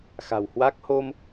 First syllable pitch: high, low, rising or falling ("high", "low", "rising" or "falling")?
low